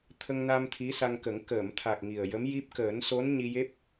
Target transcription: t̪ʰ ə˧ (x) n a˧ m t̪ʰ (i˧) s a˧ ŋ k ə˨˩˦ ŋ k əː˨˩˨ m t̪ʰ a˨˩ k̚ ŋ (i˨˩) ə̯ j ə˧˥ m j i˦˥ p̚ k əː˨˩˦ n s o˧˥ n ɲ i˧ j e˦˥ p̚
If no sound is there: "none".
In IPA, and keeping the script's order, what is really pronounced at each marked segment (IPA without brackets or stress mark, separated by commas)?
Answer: ŋ, i˧˥, i˨˩